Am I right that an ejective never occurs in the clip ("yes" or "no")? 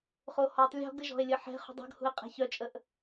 no